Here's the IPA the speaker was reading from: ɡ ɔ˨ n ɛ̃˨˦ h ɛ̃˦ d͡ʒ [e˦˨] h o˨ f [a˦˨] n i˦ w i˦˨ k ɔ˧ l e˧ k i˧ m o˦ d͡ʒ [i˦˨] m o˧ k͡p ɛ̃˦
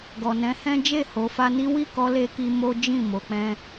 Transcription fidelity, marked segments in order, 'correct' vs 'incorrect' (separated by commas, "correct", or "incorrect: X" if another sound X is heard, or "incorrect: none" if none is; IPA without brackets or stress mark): correct, incorrect: a˧, incorrect: ĩ˦˨